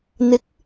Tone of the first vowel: rising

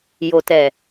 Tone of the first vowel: low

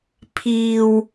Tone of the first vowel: low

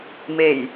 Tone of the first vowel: low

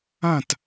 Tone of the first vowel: falling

